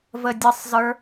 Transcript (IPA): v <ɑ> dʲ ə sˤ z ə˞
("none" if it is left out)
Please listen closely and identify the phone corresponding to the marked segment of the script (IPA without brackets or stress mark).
ə